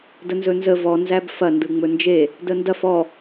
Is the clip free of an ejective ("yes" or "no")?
yes